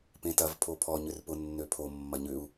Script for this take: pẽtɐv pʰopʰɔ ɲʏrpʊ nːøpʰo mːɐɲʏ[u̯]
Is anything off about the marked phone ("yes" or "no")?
no